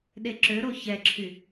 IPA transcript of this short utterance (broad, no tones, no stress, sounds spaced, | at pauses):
ɗ e ǁ ø ɾ o ç ɛ ǁʰ y